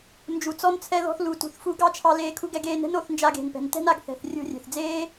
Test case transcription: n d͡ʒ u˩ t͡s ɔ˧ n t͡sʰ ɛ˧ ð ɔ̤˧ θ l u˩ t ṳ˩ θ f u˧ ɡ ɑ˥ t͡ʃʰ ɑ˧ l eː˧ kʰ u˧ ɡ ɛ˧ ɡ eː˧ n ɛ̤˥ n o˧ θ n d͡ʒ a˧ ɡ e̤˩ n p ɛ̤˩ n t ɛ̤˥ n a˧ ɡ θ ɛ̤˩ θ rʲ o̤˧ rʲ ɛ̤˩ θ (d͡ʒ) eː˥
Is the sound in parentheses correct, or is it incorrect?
incorrect